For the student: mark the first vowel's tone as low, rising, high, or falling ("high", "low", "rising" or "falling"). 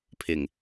low